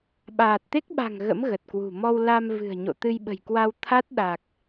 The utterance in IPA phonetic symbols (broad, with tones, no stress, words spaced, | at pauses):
ɓaː˨˩t̚t̪e˦˥k̚ɓa̤˨˩ŋ ɣə̰˧˥m ɣə˨˩t̚kwṳ˨˩ mɔ˧wla˧m vɨ̤˨˩ə̯ɲo̰˧˨ t̪ɨ˧jɓə̤˨˩jkwa˧w t̪ʰa˦˥t̚ɗa˨˩k̚